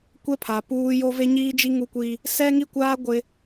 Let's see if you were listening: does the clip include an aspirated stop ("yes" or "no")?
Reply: yes